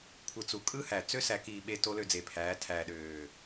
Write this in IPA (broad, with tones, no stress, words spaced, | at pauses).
kʷʰɯ˨t͡su˨ kʼɯ˦hæ˨ t͡sø˦sæ˨kiː˨ ɓe˨ to˦lø˦˨d͡ze˨pʰæː˨˦ tʰæː˨ɗøː˨